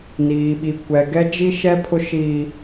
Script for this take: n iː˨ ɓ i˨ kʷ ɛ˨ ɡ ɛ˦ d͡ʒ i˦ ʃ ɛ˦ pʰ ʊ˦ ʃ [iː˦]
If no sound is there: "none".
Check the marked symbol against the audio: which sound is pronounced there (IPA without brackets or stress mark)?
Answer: iː˦